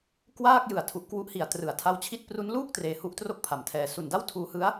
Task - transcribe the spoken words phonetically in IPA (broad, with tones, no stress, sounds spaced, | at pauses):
k w aː˥˩ k̚ j ɯ˨˩ a̯ tʰ u˨˩ ʔ k w u˦˥ ʔ h i˨˩ a̯ t r ɯ˩˦ a̯ tʰ a˦˥ w t͡ɕʰ i˦˥ t̚ p r u˦˥ n l uː˥˩ k̚ t r eː˧ h u˦˥ ʔ t r o˥˩ k̚ pʰ a˨˩ m tʰ ɛː˧ s u˨˩ n d a˥˩ w tʰ uː˧ h ɯ˦˥ a̯